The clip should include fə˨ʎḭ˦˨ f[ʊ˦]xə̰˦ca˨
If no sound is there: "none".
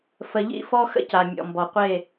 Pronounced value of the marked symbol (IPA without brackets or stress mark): ɔ˦